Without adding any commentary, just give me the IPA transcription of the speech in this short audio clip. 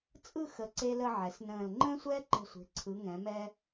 t͡sʼ ɯ˥˧ x ə˩˧ ǀ e˧ l ə˧ ʕ ɛ˩˧ s n ə̃ː˧˩ l ŋ͡ǃ ə̃ː˥ sʷ ɛː˥ ǃ ɛ̤˧˩ sʷ e̤˩˧ ǀʰ ɯ˩˧ ŋ ɛ̃˩˧ m ɛ˧

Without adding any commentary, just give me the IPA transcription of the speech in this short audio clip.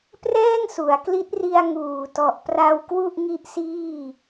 p r ɛː˥˩ ŋ s u˩˦ a̯ k l i˦˥ t̚ r i˧ a̯ ŋ uː˨˩ t ɔ˨˩ ʔ p r a˧ w k w u˥˩ ʔ ŋ i˦˥ ʔ s iː˥˩

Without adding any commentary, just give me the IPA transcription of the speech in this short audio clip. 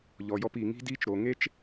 ʎ ɔ˨ j ɔ˧ p iː˨ ŋ i̤˦ d iː˦ t͡ʃ ɾ o˨ ŋ e˦ t͡ʃ

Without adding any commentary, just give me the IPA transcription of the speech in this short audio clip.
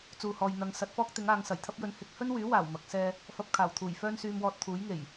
t͡s uː˨ h ɔː˨ j n̪ ɐ˧ ŋ s ɐ˨˥ t̚ f ɔː˥ k̚ t̪ ɪ˨˥ ŋ aː˨˧ ŋ s ɐ˨˩ j t̪ʰ ɐ˥ p̚ j ɵ˧ n h ɪ˥ k̚ h ɵ˥ n w yː˨˥ w aː˨˩ w m ɐ˨˥ k̚ s ɛː˥ | f ɐ˧ p̚ kʰ aː˨˩ w t̪ʰ uː˨˩ j f œː˥ n s yː˧ m w ɔː˧ t̚ t̪ʰ uː˨˥ j ŋ e˨˩ j

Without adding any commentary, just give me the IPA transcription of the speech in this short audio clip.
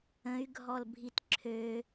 ə̃ y̯ ɡʱ ɔ l bʱ i t ǁʰ ø

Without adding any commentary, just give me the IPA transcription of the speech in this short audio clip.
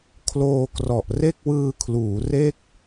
kʰ l oː˧ k r ɔ˨˩ ʔ r e˥˩ k̚ w ɯː˧ kʰ l uː˩˦ r e˥˩ k̚

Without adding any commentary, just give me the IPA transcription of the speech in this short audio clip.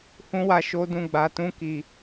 h ũ˦ w a˧ ʃ o˦ d ũ˦˨ ɡ͡b a˧ t ũ˦ k i˧

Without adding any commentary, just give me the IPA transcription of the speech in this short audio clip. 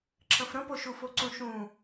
ǁ ə̃ f ɾ ə̃ p o ʃ u f o ǀ ũ ʃ ũ

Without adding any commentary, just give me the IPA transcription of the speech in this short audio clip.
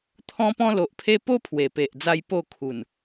t̪ʰ ɔ̃˧ p ɔ̃˧ l o˨ ʔ pʰ e˧ p o˦ pʰ w e˨˩ p e˨ ʔ d͡z a˧ j p o˥˧ kʰ u˨˩ n

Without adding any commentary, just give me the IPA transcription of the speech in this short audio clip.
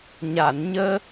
ɲ a˨˩˨ n ɲ əː˧

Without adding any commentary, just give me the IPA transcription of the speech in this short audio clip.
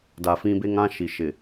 d a˨ f ĩ˦ b e˦ ŋ ã˦ ʃ i˨ ʃ ɪ˨

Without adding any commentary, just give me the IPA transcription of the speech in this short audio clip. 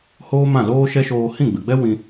h oː˦ m ã˦˨ l oː˦ ʃ ɛ˦ ʃ oː˧ h ĩ˦˨ ɡ͡b ɨ˨ ɡ͡b ɛ˦ w ĩ˧

